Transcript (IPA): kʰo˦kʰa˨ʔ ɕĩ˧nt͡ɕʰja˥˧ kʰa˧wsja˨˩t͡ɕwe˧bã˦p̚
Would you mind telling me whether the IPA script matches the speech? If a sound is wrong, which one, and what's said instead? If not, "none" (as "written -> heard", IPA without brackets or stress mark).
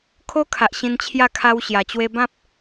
s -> ɕ